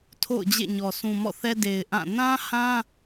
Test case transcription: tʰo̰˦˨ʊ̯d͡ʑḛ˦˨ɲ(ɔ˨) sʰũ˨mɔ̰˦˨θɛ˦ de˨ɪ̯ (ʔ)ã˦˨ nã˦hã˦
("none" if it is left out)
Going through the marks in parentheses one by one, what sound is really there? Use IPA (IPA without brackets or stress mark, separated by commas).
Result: ɔ˨, ʔ